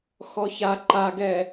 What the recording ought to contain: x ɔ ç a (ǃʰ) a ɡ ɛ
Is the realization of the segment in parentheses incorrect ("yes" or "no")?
yes